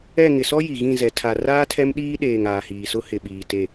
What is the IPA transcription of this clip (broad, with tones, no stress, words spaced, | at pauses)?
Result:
ɛ˦˨ ŋɪ˨sɔ˦ ji˨ɣĩ˦˨zɛ˨ tʰa˨raː˦ tʰɛ˦mɗiː˦ɗeː˨ŋ aː˨hiː˨sʊ˦ hɪ˨ɓiː˨ te˦˨